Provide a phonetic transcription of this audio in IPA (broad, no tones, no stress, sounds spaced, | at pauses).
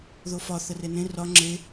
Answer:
ð o f ɒ θ ə r e n ẽ r ɒ ŋ͡ǁ e